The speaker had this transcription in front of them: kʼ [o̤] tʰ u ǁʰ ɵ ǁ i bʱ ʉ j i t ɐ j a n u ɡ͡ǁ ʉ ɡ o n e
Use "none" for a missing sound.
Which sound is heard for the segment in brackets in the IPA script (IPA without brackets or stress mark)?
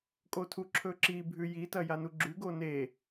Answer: o